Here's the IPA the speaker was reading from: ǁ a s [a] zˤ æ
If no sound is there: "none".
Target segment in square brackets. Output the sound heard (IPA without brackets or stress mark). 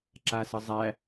ə